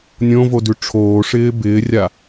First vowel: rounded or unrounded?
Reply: rounded